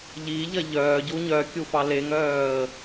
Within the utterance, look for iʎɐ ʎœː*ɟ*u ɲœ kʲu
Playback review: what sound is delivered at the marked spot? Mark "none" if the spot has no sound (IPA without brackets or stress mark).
ɟ